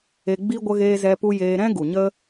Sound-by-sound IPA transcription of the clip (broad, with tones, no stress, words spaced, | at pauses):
e˧ɡ͡bi˦ ɡʷə˧ɣeː˧zɛ˧pu˧ jeː˧ɾɛ̃˦ɡu˨ɲə˦